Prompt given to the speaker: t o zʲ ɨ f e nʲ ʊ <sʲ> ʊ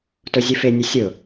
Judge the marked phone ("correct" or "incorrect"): correct